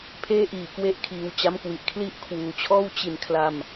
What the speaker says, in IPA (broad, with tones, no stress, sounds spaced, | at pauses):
pʰ eː˥˩ ʔ iː˨˩ k w e˥˩ ʔ kʰ iː˧ w t͡ɕ a˦˥ m k w i˨˩ ʔ kʰ l i˦˥ ʔ kʰ w uː˨˩ t͡ɕʰ ɔː˥˩ w t͡ɕ i˧ n kʰ l a˧ m